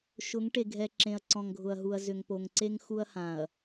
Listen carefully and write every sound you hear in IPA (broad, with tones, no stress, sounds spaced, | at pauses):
ʃ ʊ˨˦ ŋ ʈ e˨ ɡʱ ɛ˨ ǁ ẽ˨ ɐ̯ ǀ ɔ̃˨ ŋ ɡʱ ʊ˨ ɐ̯ ɦ u˨ ɐ̯ z ʏ˨ ŋ p o˨ ŋ ǀ e˦ ŋ x u˦ ɐ̯ h ã˨ ɐ̯